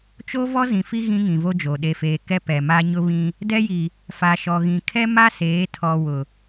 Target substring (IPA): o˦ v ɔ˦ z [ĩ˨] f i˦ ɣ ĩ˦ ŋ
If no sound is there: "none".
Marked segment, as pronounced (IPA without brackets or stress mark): ĩ˨